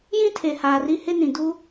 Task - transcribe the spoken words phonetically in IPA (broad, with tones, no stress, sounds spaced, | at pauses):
j ĩ˦ tʰ e˨ h aː˨ r i˦ h ɪ˦ n ĩ˨ d u˦